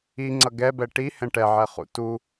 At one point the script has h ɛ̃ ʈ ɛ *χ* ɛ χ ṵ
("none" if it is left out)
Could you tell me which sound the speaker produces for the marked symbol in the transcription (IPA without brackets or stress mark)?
ʕ